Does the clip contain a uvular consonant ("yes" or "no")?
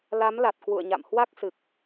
no